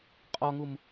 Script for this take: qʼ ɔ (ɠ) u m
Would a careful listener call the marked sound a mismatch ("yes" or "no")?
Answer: yes